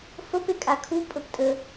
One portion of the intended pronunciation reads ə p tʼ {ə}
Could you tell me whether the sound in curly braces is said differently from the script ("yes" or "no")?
no